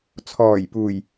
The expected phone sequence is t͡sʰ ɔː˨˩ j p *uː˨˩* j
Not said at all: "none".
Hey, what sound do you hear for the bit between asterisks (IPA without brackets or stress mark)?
uː˨˩